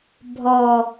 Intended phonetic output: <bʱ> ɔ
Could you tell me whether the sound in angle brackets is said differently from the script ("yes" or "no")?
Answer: no